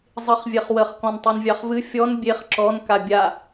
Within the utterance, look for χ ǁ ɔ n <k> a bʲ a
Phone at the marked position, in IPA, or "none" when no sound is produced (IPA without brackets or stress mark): k